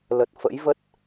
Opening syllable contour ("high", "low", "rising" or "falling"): low